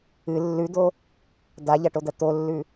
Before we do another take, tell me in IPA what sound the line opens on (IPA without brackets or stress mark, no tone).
ɨ